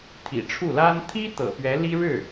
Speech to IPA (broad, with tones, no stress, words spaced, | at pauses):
t̪ʰḭ˨˩ʈ͡ʂʰu˥˩la˥n t̪ʰi˥ t̪ɤ̰˨˩pɥɛ˧˥li˥ ɻɻ̩˥˩